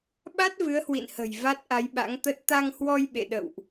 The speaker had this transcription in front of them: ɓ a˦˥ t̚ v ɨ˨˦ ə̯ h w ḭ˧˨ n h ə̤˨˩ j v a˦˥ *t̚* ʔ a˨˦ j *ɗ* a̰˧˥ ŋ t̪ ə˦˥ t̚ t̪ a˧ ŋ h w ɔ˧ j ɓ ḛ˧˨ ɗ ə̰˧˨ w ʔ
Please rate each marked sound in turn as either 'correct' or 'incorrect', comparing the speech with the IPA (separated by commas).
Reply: correct, incorrect